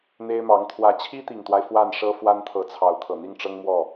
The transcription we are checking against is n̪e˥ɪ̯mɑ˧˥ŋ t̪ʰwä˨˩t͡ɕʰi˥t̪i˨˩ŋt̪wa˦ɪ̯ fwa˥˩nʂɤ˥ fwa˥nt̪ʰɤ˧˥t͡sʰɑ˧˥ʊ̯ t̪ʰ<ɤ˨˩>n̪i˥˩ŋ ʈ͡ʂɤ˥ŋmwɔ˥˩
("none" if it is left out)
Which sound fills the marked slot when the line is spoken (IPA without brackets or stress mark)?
ɤ˨˩